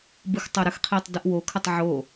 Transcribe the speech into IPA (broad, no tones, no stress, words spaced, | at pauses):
bɯxtˤoɾəxqʰiːtˤ dɯʔwokʰətˤ ʕo